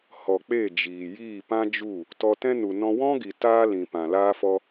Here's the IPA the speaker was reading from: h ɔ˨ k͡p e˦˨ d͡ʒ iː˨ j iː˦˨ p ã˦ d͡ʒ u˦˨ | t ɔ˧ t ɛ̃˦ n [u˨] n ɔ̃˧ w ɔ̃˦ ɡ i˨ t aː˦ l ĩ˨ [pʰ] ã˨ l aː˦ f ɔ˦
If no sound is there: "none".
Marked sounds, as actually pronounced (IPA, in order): u˨, p

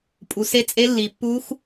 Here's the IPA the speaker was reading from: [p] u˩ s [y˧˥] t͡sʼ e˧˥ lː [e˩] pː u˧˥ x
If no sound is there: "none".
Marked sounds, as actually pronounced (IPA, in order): pʼ, e˧˥, i˩

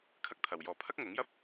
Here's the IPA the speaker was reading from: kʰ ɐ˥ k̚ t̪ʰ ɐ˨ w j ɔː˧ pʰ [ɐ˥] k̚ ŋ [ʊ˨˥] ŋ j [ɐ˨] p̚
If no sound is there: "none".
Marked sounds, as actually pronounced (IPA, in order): ɐ˥, ʊ˨˥, ɐ˥

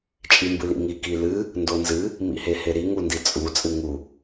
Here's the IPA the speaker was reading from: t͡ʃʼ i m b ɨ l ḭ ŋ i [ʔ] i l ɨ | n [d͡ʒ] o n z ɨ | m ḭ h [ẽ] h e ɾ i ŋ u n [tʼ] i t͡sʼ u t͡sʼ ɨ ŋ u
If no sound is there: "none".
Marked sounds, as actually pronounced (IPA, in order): k, d, e, d

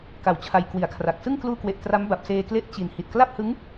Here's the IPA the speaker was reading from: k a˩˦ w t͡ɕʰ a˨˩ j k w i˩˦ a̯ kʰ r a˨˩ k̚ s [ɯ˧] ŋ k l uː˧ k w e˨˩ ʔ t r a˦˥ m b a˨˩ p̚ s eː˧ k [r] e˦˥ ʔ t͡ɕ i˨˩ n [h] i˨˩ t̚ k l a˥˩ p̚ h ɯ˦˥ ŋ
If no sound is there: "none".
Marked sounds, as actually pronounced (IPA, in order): ɯ˥˩, l, h

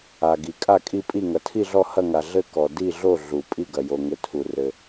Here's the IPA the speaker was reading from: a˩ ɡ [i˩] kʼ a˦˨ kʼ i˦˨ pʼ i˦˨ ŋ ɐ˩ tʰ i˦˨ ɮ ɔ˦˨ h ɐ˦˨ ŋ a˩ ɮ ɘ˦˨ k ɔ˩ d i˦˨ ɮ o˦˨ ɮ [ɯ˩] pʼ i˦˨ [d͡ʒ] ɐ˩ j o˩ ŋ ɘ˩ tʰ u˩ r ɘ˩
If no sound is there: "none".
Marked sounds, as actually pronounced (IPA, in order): i˩, u˩, ɡ

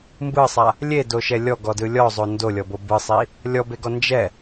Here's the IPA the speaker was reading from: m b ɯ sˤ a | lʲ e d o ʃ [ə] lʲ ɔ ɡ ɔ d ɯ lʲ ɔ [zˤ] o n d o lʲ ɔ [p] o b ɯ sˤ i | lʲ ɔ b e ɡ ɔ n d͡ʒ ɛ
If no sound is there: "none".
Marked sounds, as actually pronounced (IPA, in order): ɛ, zˤ, b

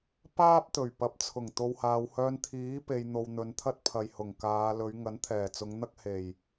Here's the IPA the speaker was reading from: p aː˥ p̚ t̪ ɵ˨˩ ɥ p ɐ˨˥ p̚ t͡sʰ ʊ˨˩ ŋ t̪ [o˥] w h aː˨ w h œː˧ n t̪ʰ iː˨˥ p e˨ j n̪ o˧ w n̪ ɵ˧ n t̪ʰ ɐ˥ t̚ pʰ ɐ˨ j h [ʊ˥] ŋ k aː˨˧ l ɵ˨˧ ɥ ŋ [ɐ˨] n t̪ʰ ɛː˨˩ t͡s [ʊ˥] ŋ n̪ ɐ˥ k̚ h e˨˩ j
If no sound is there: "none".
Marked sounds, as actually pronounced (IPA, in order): o˨, ʊ˨˩, ɐ˨˥, ʊ˨˧

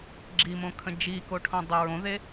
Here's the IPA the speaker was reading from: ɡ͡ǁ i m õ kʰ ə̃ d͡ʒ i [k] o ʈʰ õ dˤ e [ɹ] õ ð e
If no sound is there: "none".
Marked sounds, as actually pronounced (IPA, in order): k, ɹ

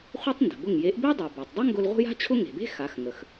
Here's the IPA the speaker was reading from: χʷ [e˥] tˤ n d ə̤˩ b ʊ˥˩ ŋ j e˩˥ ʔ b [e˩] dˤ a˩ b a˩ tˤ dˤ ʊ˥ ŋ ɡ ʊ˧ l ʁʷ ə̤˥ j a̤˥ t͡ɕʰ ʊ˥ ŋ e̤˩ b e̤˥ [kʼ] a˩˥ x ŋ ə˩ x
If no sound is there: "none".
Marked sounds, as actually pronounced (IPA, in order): e˥, e˥, x

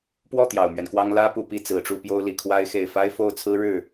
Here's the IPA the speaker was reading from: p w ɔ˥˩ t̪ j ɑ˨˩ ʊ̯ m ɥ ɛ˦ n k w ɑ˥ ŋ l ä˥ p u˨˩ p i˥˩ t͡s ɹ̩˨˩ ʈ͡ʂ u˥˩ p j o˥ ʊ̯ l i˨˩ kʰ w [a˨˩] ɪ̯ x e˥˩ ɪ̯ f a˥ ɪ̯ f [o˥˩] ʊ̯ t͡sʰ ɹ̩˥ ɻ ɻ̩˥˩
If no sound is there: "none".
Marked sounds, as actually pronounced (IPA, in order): a˥, o˥˩

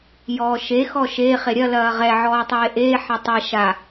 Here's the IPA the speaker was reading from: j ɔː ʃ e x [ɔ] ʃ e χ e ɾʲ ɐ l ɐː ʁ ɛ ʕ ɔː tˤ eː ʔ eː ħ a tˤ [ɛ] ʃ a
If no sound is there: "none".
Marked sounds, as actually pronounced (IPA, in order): ɔ, ɛ

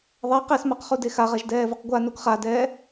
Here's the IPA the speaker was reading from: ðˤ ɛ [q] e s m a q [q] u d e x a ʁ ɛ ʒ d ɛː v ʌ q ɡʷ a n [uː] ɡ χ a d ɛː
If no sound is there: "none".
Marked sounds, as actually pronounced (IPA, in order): q, χ, u

